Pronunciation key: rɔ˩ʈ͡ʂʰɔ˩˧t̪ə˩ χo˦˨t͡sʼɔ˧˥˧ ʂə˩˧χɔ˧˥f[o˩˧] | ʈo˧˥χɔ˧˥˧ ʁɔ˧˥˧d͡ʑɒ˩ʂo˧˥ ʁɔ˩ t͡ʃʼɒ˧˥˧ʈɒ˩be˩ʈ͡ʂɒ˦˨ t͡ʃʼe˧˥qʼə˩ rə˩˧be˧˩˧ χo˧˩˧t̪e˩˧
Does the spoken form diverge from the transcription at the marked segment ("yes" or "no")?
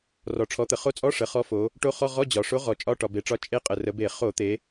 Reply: no